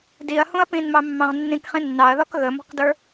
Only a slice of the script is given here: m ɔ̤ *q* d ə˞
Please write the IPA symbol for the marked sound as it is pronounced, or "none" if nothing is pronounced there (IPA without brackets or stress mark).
q